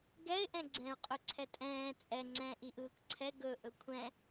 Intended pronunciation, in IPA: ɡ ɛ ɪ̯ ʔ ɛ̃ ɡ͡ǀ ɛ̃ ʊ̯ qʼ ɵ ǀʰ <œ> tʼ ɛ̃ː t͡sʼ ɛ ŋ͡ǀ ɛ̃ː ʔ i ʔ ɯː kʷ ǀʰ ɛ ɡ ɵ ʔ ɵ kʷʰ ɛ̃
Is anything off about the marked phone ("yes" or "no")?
yes